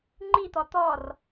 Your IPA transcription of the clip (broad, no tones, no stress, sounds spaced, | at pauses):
ŋ͡ǃ i t̪ ɔ t̪ ɔ r